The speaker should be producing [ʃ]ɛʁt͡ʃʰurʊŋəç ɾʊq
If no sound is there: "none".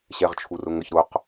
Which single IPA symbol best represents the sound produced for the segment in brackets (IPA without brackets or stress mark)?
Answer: ɕ